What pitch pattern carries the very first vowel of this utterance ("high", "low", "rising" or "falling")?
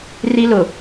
high